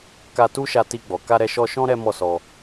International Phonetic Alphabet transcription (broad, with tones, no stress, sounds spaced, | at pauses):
k a˧ t u˦ ʃ a˧ t i˧ ɡ͡b ɔ˨ k a˧ ɾ ɛ˧ ʃ ɔ˧ ʃ ɔ̃˦ ɾ ɛ˦ m ɔ˦˨ s ɔ˧